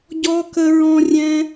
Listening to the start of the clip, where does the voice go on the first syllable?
high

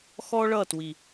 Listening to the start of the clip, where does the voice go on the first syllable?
high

